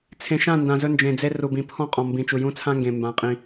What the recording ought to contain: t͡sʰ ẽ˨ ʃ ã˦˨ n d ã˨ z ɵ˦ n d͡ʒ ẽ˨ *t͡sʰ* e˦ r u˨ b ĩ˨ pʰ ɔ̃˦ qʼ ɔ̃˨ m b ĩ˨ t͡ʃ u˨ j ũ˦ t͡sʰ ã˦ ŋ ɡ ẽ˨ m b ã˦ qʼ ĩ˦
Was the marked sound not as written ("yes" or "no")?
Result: yes